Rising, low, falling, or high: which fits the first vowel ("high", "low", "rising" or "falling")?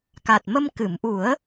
low